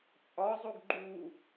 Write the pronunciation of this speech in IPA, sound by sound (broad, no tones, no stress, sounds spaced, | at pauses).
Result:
t͡sʼ ɒ zˤ o ɡ ɡ͡ǃ u